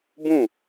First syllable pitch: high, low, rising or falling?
falling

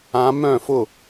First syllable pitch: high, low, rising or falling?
rising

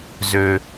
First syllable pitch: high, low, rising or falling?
low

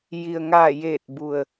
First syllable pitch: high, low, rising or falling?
low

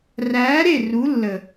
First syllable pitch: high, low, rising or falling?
rising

